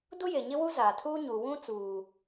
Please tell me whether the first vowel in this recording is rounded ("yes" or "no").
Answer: yes